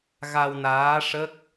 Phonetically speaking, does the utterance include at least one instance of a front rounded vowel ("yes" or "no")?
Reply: no